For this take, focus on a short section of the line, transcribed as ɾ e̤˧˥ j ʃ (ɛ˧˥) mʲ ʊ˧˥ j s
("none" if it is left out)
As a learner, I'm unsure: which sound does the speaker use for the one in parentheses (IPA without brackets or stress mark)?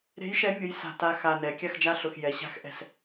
ɛ˧˥